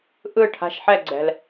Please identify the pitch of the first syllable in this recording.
falling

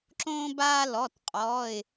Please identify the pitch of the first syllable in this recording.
high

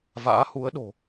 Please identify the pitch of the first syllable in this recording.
rising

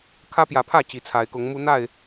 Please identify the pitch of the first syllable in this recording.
high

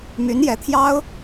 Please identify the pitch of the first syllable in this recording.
rising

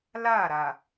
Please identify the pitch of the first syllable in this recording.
falling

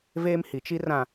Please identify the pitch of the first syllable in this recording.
high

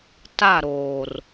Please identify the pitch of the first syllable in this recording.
falling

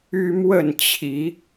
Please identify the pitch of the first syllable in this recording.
high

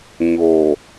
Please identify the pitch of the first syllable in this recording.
low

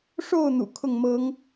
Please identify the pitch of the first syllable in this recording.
falling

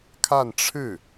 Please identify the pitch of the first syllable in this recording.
falling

